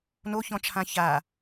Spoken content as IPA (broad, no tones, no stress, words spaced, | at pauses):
noçɔ̃t͡ʃʰã ça